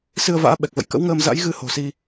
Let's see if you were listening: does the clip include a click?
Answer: no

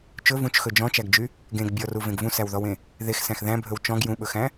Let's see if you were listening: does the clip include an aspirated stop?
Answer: no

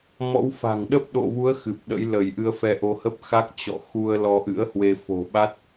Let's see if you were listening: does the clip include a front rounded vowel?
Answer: no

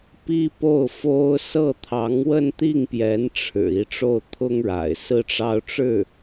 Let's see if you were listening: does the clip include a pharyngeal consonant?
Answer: no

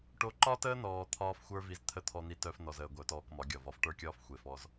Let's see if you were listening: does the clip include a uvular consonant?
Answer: no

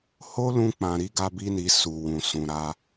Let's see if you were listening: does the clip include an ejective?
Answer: no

